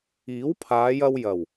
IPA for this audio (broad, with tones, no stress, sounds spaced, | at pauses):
iː˨˥ w pʰ aː˨˧ j ɐ˧ w j ɐ˨˩ w